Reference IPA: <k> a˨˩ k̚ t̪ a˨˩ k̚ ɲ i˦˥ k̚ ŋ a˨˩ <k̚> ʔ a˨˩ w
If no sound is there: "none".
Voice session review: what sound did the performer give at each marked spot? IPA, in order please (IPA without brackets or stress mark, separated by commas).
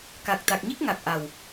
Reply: k, k̚